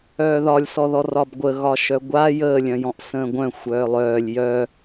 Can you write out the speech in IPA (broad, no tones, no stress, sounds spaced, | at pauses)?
œː ð ɒ lʲ s ɔ ð ɔ r ɒ b ɡʷ ə ɣ ɒ ʃ œ ɡʷ a j əː lʲ œ̃ j ɔ̃ ʔ s ə̃ː ɡʷ œ̃ xʷ œː lˠ œː lʲ j œ